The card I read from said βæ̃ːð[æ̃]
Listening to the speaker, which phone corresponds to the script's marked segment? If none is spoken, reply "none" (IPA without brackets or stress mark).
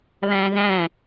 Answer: æ̃